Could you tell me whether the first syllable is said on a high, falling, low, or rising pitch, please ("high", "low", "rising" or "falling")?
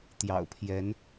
low